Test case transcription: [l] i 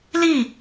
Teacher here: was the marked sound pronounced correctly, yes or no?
yes